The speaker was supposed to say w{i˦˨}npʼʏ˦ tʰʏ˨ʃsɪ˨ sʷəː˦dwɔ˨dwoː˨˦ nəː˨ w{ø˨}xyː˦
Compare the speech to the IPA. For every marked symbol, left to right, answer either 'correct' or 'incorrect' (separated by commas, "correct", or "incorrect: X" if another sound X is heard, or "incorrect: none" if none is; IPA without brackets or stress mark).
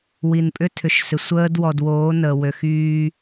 incorrect: i˨, correct